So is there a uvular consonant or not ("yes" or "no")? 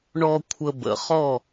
yes